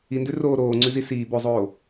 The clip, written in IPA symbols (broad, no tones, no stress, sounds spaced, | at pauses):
i n d ʉ r oː ɾ oː ŋ͡ǀ ʉ z i s iː b o zˤ oː